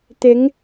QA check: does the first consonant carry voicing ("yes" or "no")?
no